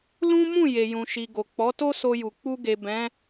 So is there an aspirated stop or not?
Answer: no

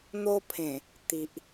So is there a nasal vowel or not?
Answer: yes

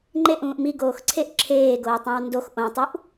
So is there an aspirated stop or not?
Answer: yes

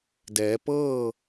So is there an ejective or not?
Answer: no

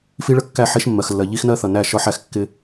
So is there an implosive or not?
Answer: no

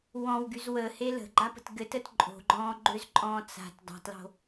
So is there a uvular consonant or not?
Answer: no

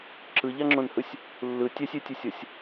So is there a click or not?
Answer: yes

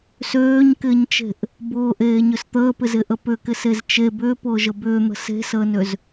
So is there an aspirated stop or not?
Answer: no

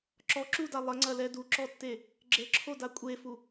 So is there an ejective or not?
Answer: yes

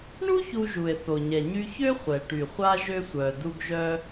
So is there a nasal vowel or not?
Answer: no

